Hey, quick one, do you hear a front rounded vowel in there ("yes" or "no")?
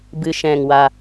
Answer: no